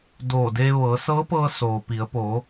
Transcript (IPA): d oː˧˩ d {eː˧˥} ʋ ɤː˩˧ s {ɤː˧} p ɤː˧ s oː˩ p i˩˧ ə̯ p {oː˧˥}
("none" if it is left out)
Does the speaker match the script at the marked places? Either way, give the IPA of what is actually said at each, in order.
eː˧, ɤː˧˥, oː˩˧

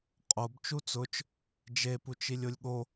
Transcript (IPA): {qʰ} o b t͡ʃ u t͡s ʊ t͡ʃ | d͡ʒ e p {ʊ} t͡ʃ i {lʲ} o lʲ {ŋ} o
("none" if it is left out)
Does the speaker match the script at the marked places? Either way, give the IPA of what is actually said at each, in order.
qʼ, u, lʲ, ɠ

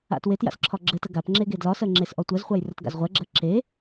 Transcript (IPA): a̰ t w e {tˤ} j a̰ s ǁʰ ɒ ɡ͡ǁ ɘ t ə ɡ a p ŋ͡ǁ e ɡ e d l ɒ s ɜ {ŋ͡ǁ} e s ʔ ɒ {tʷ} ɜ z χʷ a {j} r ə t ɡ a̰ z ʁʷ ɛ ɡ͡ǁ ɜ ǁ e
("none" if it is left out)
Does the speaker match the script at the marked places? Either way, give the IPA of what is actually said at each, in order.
t, ŋ͡ǁ, tʷ, j

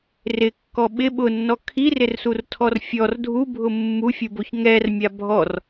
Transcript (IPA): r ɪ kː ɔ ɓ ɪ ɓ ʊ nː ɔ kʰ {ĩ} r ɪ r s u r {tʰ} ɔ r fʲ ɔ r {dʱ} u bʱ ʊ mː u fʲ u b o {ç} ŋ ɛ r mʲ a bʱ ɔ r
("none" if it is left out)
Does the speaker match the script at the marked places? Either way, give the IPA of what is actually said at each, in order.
i, tʰ, dʱ, ç

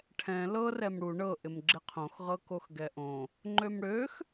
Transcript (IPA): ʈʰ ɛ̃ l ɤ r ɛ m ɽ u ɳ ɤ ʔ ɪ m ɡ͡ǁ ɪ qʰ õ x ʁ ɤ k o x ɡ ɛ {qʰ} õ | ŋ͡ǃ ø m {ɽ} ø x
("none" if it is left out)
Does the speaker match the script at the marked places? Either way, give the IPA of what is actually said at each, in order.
ʔ, ɽ

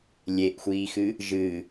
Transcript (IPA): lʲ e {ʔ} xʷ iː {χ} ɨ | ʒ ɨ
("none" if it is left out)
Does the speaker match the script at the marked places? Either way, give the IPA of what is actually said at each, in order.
ʔ, x

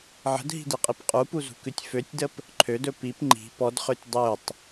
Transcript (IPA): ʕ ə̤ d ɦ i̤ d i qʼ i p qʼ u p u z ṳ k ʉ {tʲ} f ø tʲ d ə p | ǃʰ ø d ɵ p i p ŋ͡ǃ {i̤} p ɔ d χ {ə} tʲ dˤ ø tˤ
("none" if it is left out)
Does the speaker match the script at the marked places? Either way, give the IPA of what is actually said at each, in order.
tʲ, i̤, ø

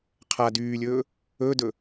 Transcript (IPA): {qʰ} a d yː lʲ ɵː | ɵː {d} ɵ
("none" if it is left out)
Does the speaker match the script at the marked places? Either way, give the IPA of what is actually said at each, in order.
qʰ, d

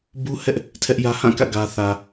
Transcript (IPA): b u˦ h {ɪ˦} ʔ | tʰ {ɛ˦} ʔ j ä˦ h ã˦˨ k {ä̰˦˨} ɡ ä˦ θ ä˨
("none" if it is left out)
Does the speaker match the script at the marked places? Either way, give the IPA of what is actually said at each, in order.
ɛ˦, ɛ˦, ä̰˦˨

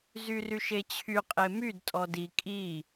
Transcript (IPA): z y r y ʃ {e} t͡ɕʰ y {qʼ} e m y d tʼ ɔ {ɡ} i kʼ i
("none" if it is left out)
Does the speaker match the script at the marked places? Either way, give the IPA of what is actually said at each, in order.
e, qʼ, d

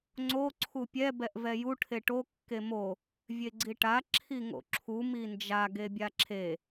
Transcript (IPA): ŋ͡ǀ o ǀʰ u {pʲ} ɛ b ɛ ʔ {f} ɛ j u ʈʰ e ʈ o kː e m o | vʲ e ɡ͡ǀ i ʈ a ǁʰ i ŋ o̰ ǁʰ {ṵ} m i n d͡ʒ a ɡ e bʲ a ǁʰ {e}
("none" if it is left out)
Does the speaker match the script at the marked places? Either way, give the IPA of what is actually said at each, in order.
pʲ, v, u, e

